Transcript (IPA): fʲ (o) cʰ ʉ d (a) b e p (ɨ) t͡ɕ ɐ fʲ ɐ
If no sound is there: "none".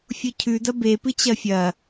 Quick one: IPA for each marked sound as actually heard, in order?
o, ɐ, ɨ

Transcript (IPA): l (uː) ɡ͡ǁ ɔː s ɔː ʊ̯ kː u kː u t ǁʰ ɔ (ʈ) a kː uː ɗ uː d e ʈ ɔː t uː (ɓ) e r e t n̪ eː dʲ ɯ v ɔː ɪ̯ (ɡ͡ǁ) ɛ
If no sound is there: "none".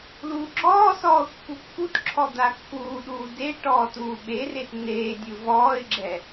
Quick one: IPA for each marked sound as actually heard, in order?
uː, d̪, ɓ, ɡ͡ǁ

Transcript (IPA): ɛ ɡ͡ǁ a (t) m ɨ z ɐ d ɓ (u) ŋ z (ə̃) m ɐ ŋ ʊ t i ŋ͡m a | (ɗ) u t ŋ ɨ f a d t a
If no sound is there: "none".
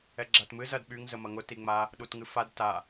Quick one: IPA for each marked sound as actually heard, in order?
t, y, ə, ɗ

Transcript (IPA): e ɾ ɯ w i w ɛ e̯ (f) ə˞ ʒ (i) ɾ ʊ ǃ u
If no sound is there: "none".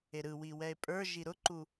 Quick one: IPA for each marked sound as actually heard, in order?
pʼ, i

